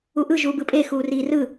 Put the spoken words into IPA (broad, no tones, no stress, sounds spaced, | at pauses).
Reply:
u ʔ ɯ ʒ uː b ɯ pʼ e x uː r iː r ɯ